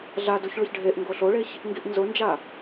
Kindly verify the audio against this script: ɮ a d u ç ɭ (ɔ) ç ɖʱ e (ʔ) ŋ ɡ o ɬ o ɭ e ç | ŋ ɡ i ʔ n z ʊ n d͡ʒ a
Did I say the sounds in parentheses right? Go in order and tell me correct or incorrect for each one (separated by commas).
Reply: incorrect, correct